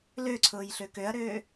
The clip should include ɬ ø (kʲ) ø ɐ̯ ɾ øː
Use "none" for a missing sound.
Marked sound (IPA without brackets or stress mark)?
k